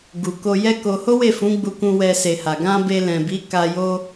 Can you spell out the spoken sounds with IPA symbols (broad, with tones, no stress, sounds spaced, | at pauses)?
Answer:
ɡ u˨ k o˧ j ɛ˦ k o˧ h o˦ w e˦˨ f ũ˨˦ ɡ͡b u˧ k ũ˧ w ɛ˧ s e˨ h a˨ ɡ ã˧ b e˧ l ɛ̃˨ b i˨˦ k a˧ j o˧